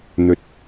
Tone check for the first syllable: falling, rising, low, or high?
low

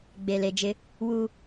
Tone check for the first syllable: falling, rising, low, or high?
low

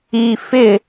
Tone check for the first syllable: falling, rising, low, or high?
low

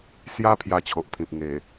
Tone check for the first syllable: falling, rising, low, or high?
high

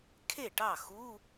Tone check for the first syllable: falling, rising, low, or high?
falling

